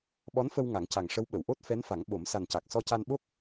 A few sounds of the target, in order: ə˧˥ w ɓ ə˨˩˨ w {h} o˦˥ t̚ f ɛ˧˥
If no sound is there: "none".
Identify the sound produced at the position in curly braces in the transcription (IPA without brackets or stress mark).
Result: ʔ